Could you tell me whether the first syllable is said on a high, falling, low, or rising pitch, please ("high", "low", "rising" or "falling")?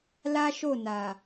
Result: high